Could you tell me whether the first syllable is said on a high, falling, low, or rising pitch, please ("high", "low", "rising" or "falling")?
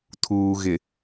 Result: low